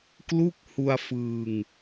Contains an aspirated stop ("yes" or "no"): no